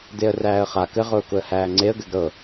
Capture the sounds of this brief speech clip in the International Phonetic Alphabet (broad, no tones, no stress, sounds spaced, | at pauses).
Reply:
d e ə̯ r æː ə̯ χ a k ɘ ʁ ʊː k ʊ ə̯ h æː ŋ͡ǀ e ə̯ ɡ ɘ ɡ ɾ ɤ